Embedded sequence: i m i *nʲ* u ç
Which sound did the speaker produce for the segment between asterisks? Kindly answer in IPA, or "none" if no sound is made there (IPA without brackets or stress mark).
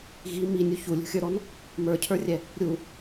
nʲ